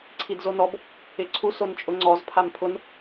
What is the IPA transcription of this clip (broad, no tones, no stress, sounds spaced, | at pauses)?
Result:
ǀʰ i d z o n ɔ b | ɪ ǀʰ u s o n t͡ʃʼ ʊ ŋ͡ǀ ɔ z pʰ a m pʰ ʊ n